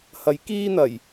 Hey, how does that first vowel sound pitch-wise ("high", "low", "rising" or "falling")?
rising